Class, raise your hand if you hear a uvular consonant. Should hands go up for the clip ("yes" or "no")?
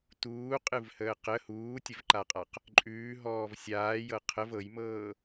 yes